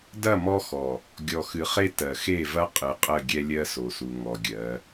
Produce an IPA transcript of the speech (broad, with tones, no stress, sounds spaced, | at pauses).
d ɐ˦˨ m ɔ˦ x ɔ˨ | ɡʲ ɔ˨ x ɨ˨ χ e˦ t ɜ˨ x e˦˨ v ɐ˦ qʼ ɨ˨ qʼ ə˦˨ ɡʲ ɛ˦ lʲ ɜ˦ s o˨ s u˨ ŋ ɔ˨ ɡʲ ɜ˨˦